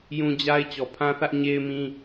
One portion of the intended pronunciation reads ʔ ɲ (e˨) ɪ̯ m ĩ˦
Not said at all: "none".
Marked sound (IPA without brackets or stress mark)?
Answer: e˦